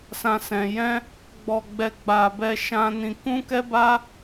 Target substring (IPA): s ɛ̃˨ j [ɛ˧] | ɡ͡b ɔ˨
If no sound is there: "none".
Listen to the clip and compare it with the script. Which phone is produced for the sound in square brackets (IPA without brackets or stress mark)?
ɛ̃˧